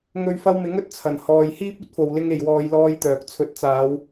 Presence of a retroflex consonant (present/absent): absent